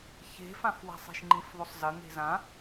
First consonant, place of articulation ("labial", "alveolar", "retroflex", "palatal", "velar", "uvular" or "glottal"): palatal